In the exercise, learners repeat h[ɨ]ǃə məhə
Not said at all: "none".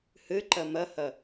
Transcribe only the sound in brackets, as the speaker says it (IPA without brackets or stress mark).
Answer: ɨ